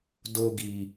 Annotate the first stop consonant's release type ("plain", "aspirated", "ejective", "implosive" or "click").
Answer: plain